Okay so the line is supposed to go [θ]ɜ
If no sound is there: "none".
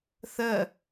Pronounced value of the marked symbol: θ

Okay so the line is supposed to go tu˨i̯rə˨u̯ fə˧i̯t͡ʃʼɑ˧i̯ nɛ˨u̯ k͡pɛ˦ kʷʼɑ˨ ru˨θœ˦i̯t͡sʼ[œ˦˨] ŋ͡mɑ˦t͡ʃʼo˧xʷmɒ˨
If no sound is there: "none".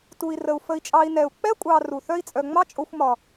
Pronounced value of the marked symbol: œ˧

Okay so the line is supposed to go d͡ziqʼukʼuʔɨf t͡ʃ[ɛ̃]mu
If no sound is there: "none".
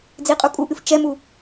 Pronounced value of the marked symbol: ɛ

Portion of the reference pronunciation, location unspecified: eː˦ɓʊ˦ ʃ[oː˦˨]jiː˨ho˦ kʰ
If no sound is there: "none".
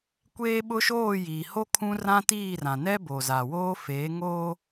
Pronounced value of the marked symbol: oː˦˨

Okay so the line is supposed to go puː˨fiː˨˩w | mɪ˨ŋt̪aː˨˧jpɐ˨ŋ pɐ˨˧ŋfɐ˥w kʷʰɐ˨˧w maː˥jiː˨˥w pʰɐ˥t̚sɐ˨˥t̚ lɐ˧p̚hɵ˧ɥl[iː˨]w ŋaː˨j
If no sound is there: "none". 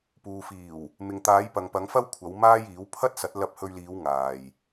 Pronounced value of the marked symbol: iː˨˧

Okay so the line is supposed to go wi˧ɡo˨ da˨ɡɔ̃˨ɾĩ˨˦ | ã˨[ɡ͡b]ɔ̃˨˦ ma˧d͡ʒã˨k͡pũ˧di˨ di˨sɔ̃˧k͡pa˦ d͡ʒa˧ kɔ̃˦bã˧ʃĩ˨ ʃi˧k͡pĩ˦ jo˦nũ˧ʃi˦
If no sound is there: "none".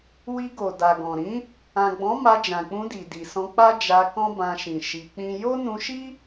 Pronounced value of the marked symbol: ɡ͡b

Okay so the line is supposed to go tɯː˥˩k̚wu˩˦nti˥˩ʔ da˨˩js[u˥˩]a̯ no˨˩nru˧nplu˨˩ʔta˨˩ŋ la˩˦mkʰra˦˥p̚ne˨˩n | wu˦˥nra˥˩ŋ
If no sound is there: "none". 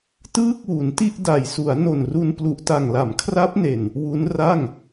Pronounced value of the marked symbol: u˩˦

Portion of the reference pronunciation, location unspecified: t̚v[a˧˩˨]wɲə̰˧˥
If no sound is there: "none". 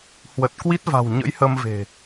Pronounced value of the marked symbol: a̤˨˩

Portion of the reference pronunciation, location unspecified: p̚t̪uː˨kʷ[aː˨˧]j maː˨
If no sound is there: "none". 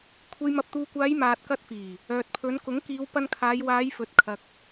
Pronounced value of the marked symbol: aː˨˧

